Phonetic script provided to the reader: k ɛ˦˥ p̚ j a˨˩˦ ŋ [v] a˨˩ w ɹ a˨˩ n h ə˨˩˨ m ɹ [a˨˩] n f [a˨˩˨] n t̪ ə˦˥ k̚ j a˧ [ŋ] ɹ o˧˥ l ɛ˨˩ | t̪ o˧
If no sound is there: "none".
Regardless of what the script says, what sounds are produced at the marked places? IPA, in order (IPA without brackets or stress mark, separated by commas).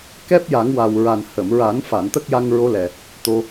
w, a˨˩˦, a˨˩˨, ŋ